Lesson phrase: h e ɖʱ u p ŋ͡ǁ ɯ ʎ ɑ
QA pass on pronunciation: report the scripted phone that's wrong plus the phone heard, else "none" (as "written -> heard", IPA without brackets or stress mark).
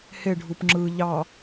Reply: none